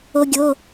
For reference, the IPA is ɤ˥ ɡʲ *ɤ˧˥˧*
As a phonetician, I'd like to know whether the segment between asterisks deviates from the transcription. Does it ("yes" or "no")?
no